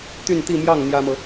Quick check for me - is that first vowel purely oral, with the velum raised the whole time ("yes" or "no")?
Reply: yes